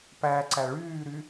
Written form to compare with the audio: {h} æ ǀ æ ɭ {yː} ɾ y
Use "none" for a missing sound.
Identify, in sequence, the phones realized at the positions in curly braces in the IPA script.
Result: p, yː

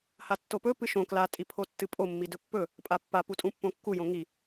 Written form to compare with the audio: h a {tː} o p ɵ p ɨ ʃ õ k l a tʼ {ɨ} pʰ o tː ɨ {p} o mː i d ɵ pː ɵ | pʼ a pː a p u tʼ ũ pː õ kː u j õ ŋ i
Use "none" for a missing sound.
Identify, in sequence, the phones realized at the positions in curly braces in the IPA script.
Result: tː, i, pʼ

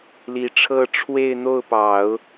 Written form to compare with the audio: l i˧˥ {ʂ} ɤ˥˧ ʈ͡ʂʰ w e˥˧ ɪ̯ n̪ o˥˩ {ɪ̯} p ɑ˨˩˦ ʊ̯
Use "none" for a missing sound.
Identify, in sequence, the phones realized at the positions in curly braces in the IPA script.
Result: ʈ͡ʂʰ, ʊ̯

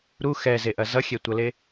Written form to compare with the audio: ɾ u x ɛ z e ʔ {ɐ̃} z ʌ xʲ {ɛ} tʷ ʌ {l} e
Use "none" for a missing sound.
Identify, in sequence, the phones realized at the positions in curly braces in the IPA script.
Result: ɐ, ɛ, l

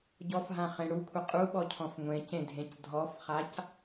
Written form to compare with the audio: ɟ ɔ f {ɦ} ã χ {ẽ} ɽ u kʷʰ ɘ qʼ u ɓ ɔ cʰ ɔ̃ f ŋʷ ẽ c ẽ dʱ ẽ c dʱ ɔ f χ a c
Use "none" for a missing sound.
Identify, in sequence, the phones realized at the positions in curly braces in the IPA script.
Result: ɦ, ẽ

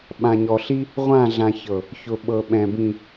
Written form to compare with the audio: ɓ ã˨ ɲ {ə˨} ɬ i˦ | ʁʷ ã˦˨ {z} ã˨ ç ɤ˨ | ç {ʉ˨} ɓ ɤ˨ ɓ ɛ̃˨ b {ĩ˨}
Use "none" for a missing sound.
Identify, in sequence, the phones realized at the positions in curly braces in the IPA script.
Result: ɔ˨, ɮ, ʊ˨, ĩ˨

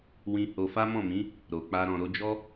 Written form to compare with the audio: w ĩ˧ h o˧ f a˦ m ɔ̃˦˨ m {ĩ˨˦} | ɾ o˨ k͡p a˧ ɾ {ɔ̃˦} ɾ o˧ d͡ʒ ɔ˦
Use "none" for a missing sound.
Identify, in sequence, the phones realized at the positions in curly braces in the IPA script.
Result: ĩ˨˦, ɔ̃˨

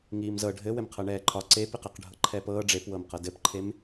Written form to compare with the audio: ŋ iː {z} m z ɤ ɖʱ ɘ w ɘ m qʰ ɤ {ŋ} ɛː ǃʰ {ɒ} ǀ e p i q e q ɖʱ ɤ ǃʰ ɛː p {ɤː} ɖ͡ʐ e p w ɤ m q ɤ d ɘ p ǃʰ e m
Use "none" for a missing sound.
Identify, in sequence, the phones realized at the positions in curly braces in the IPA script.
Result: none, ɳ, ɒ, ɤː

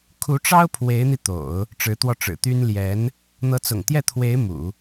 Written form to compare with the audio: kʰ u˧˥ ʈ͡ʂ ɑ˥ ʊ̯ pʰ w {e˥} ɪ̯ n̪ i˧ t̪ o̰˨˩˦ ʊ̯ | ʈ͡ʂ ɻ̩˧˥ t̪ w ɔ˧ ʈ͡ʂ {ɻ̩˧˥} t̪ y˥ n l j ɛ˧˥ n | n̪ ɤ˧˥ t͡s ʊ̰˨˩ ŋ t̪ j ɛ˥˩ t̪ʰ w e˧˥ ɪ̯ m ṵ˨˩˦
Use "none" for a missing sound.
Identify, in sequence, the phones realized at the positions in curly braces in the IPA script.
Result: e˧˥, ɻ̩˨˩

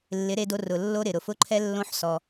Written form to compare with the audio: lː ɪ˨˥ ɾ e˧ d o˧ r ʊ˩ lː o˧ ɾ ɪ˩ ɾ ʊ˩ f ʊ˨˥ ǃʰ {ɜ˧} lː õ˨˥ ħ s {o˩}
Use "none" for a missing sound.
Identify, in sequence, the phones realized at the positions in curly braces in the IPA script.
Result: ɛ˧, ɔ˩

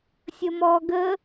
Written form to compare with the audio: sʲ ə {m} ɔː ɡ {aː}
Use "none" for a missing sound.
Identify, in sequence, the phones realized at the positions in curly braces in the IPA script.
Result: m, əː

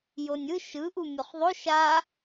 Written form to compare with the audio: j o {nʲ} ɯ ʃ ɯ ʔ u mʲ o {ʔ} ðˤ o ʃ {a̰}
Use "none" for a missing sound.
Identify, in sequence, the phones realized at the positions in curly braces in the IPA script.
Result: nʲ, χ, a

